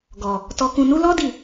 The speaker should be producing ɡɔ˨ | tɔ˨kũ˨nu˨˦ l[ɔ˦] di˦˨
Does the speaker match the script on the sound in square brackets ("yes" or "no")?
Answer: yes